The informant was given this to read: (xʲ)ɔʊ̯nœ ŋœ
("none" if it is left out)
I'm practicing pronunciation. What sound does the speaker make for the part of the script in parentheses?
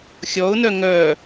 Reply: xʲ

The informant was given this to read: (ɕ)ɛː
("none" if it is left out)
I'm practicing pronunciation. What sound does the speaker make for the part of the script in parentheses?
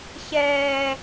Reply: ɕ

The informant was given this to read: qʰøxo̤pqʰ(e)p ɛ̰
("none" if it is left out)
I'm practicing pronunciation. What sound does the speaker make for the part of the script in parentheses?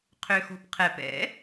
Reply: ɛ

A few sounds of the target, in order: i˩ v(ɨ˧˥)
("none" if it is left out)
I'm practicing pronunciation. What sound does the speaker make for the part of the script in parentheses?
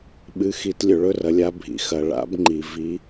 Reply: i˧˥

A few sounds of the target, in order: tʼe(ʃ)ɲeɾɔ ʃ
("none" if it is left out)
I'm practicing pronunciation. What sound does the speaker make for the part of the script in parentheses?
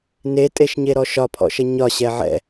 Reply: ʃ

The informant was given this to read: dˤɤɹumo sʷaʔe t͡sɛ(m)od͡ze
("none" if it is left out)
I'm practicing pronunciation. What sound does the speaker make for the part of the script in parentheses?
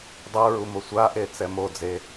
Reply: m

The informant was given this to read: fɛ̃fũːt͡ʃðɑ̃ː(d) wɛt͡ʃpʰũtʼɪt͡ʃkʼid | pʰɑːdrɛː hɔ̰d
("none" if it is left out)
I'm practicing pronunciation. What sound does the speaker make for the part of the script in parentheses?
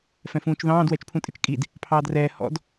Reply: d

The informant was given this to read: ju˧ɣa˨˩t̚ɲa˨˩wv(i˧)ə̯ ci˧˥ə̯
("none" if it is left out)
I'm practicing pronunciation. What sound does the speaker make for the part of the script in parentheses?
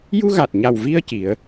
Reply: i˧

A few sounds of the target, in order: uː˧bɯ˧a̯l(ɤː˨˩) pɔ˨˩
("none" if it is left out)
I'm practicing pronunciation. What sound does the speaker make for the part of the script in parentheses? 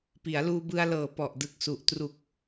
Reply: ɤː˨˩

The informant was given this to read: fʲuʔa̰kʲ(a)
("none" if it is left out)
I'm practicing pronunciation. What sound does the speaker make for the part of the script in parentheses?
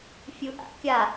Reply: a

